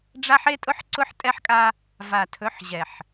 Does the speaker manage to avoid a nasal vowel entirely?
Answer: yes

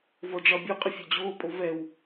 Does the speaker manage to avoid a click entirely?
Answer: yes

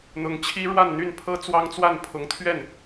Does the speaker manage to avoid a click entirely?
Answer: yes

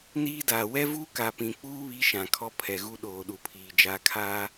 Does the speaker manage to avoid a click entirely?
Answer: yes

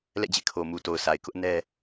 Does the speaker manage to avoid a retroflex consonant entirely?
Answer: yes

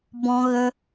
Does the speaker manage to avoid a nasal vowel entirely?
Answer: no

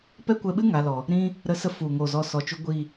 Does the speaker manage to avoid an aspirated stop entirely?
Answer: yes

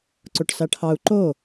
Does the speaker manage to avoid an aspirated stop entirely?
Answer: no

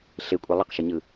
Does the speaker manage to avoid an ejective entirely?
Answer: no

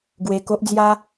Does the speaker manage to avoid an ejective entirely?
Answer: yes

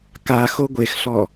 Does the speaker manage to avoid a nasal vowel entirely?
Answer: yes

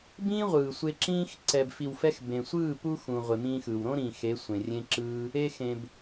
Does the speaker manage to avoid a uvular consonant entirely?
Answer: no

